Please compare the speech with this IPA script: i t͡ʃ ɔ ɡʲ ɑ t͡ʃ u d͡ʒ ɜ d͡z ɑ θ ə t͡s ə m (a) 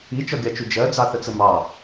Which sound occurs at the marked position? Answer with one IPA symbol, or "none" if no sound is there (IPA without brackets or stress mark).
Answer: ɑ